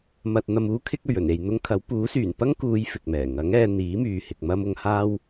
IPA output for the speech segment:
m ɐ˨ t̚ n̪ ɐ˨ m uː˧ kʰ ɪ˧ k̚ ɵ˨˩ ɥ ɵ˨˩ n e˨ j n̪ ʊ˧ ŋ kʰ ɐ˨˥ w p uː˨˥ s yː˨˩ n p ɐ˥ ŋ k uː˨˧ j f ɪ˨ k̚ m ɛː˨˩ ŋ ɐ˨˥ ŋ ɛː˨˧ n̪ iː˨˥ m yː˨ h ɪ˨ k̚ m ɐ˧ m ʊ˨˧ ŋ h aː˥ w

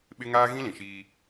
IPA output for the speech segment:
ɓ ɪ˦ ŋ aː˦ ɣ ĩ˦ l ĩ˨ ʃ iː˦

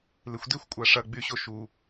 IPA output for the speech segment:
l ɪ xʷ d e xʷ kʷʼ a ʂ ɐ ɡ͡b y ɕ o ʃ u

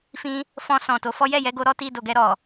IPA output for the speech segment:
f ĩ˧ | f ɔ̃˧ s ɔ̃˨ t o˨˦ f ɔ˦ j ɛ˦˨ j ɛ˧ ɡ o˧ ɾ ɔ˦ t i˧ d o˨ ɡ ɛ˧ ɾ ɔ˨

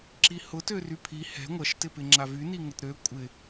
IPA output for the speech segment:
ǁ i h ʊ t ø r y pʰ i h ɛ̤ ŋʷ ɐ ʃ t ɪ p ɪ ŋ͡ǁ a v y n i ŋ ə t ɾ ø kʷʼ ɪ

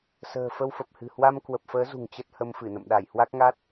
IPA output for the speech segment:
s ə̤ː˨˩ f ə˧ w f ə˨˩ p̚ h ɨ̤˨˩ h w a˧ m k w ə˨˩ p̚ f əː˨˦ z ṳ˨˩ ŋ t͡ɕ ə˦˥ t̚ h ə˧ m f ɨ˧˩ n ə̰˧˨ m ɗ a˧˩ j h w a˦˥ k̚ ŋ a˦˥ t̚

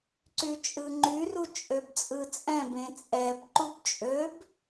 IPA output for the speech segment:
ǀ y t͡ʃʼ ɯ ŋ͡ǃ y r u t͡ʃʼ ø b t͡sʼ ɯ t͡sʼ ɛ̃ b ẽ t͡sʼ ɛ b ǃ u b t͡ʃʼ ø b

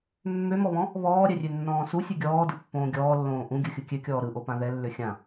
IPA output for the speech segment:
mː ø m ɔ β ɔ̃ | β ɔː ɾʲ ɛ rʲ ø nː ɔ̃ː s u sʲ ʉ ɡʲ ɔː d ɯ pː õː ɡʲ ɔː lː õː ʔ ũ ɡʲ ɯ xʲ ɯ kʲ ø kʲ ɔː ɾ ɯ ʔ o p ã ð ɛ lː ø xʲ ã

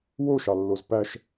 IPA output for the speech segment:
w o ʃ ɑ lː o z p æ ʃ

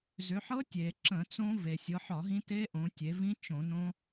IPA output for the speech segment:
z ʏ˩˧ ħ ɤ˦˥ tʲ e˩ ǁ ə̃˧˩˧ t͡s õ˦˥ v e˩ sʲ ɤ˩˧ ħ ɒ˧˩˧ ɦ ĩ˦˥ t e˦˥ ʔ õ˩˧ tʲ e˩˧ v ĩ˦˥ t͡ʃ õ˧˩˧ n õ˦˥

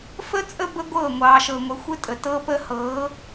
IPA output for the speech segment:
f ə˦ t͡sʼ ə˦ b ə˦ ɡʷ ɤː˦˨ ŋʷ ɑː˨ ʃ ɤ˨ ŋʷ ɘ˨ xʷ ɘ˦ tʼ ə˨ t ɤː˦ p əː˦ h ɤː˨˦

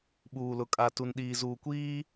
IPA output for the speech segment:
ɓ uː˨ l ʊ˨ kʼ a˨ t u˨ n ɗ iː˨ z uː˨ kʷ iː˦

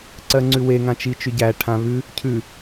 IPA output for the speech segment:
ǀ ɜ ŋ͡ǀ ʉ w e ŋ ã t͡ʃ i t͡ʃ ʉ ɟ æ ʈʰ ã β ʉ | cʰ ʉ

